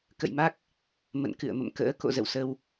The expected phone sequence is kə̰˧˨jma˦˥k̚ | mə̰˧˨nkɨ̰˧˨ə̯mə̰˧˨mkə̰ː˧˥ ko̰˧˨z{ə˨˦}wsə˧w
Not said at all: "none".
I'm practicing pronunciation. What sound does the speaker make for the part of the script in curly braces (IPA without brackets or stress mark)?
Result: ə̰˧˨